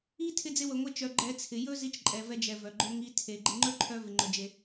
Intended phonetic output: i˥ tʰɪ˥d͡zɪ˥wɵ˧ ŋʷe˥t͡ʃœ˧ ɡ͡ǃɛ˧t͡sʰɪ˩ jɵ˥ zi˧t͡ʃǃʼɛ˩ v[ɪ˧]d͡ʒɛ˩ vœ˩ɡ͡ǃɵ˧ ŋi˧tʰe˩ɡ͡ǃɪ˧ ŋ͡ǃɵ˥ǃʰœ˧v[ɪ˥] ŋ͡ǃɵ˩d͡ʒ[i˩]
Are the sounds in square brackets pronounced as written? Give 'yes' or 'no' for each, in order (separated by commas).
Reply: no, no, no